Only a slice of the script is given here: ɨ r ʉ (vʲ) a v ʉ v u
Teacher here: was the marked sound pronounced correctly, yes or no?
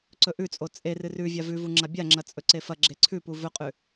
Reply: yes